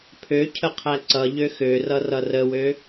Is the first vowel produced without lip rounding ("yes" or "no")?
no